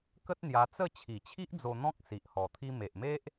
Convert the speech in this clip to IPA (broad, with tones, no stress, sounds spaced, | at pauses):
k ə˦ t̚ n̪ j a˧ t͡s ə˥˧ t͡ɕʰ i˨˩ t͡ɕʰ i˦ ʔ d͡z o˧ n̪ ɔ̃˦ k̚ s i˨ ʔ h ɔ˨˩ t̪ʰ i˦ m e˨ ʔ m e˦ ʔ